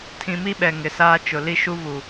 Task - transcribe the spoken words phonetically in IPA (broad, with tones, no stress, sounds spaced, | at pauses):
tʰ ĩ˨ m i˦ ɓ ɛ˨ ŋ ɪ˨ s aː˦ t͡ʃ ʊ˨ l i˦ ʃ u˦ v u˨